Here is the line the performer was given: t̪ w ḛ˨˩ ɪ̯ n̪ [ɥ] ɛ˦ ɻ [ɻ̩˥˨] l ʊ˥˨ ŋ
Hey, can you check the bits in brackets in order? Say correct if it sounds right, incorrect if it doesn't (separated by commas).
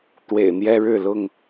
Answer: incorrect, correct